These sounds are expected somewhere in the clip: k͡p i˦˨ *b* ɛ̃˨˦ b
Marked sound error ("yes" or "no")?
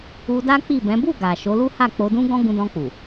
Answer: no